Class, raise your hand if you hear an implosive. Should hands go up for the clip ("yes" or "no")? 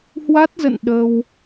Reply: yes